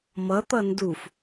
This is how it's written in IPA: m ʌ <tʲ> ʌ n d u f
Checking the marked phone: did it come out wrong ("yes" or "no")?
yes